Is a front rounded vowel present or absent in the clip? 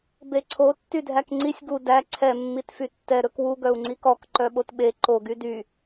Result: present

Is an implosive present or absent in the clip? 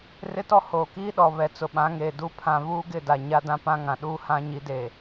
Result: present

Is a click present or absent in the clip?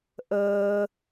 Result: absent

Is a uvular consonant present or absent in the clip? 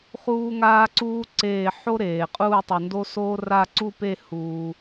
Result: present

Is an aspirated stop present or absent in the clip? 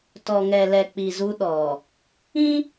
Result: absent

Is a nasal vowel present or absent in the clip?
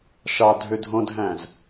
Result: present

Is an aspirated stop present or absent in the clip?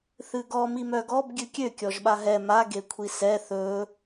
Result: present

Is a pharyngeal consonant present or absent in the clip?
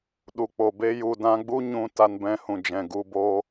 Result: absent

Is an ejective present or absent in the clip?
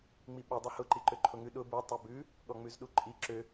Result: present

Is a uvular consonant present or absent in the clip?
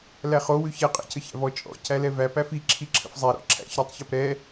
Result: present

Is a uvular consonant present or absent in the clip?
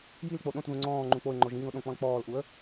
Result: absent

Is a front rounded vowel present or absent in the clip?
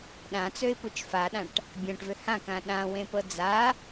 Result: present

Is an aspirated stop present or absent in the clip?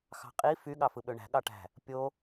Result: absent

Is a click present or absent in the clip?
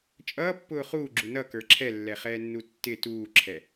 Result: present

